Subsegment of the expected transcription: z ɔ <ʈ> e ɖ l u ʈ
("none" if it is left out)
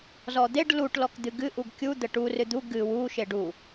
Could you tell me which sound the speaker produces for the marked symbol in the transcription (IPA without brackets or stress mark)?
d̪